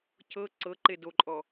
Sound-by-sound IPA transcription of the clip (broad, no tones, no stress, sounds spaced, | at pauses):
cʰ ɤ ǀ ɤ ǃ e d o ǃʼ ɔ